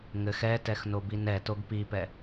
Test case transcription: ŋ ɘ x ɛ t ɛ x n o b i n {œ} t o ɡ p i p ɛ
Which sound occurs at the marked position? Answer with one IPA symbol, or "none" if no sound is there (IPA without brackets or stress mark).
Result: ɛ